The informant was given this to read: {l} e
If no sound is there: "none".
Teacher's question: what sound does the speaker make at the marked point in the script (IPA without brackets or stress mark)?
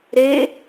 ɾ